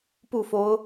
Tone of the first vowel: falling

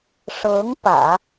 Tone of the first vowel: rising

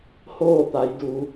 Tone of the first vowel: falling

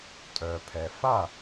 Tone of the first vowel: low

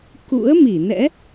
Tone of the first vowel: rising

